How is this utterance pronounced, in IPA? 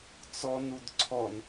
t͡s ɔ n u d ǀʰ ɔ n

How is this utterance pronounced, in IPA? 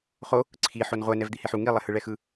χ o | ǀʰ i ħ o n ʁʷ ɛ n ɛ v d̪ i h e ħ u ŋ i lˠ ɛ h ɯ ɭ ɛ x ɯ

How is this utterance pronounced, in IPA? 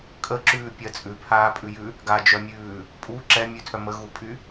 kʼ ə ǁ ʉː pʲ ɜ t͡sʼ ʉ pʰ aː pʼ ʉ j ʉ | ɡ a d͡ʒ œ mʲ ʉː | pʼ u ǁ ɛ mʲ ʉ tʰ œ m ə ɣ u pʼ y

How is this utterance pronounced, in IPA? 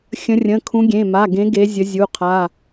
xʲ ə̃˨˦ rʲ ə̃˩˧˩ kʰ ũ˨˦ ɡʲ ẽ˩˧˩ m a˩˧˩ ɡ ẽ˨˦ ɡ e˨˦ zʲ ə˨˦ zʲ u˩˧˩ qʰ a˩˧˩

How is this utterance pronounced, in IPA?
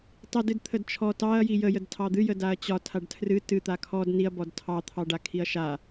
tˤ i d ɨ d t̪ʰ ə d t͡ʃʰ ɔ t ɑ ɐ̯ j i j ə j ə d tʰ ɑ d̪ ɨ j ə d a ɐ̯ t͡ɕ ɒ tʰ a ɖ tʰ r ɨ t ɨ t̪ a kʰ ɔ d n i ɐ̯ b ɔ d tʰ ɑ t̪ʰ ɑ ɖ a kʰ i ɐ̯ ʃ a

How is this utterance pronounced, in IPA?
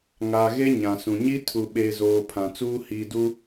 ŋ a˨ ɣ e˦ ɲ ã˨ s ũ˨ ɲ i˦ tʰ u˨ ɓ e˨ z oː˨ pʰ ã˨ t͡s uː˦ h i˨ d u˦

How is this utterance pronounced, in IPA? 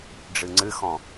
ɖ͡ʐ ɨ ŋ͡ǀ ɨ x ɔ̃

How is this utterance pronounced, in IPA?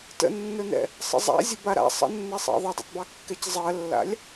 t ə̰ nː ɵ n ɛ̰ | sˤ ə̰ zˤ a̰ zʲ ə b a ɾ a̰ sˤ ə̰ nː ɛ sˤ ɑ̰ ðˤ ɛ dˤ ɛ̰ tˤ b ɑ kː ɛ c zˤ ɜ lː a̰ lʲ

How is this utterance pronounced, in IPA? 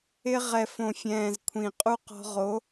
ɪ˧ ʁ ɛ˨ f õ˨ fʲ ɛ̃ː˨ z kʷʰ ĩ˨ qʼ u˦ q ɔ̤˧ ʁ o˨˦

